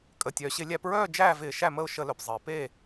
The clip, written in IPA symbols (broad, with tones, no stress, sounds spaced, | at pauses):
kʼ ə˩ tʲ œː˩ ɕ ɪ˧˩˧ lʲ æ˧˩˧ p ɹ œː˥˩ d͡ʒ æː˥˩ v ɪː˧˩˧ ʃ æ˥˩ m ə˥˩ ʊ̯ ʃ ə˧˩˧ l œ˩ p zˤ ɪː˩ p eː˥˩